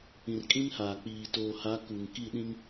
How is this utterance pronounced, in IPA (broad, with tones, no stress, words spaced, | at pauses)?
ĩ˨rkʼĩ˦nhaː˨k͡piː˨ toː˨ha˨˦ ku˨ŋ ki˦˨ɗĩ˦ŋ